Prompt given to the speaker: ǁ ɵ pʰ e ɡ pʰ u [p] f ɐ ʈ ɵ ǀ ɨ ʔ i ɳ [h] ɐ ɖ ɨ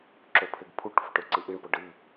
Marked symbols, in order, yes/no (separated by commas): no, no